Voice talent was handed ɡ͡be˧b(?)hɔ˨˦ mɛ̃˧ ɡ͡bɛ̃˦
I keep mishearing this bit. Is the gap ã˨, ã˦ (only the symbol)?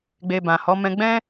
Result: ã˨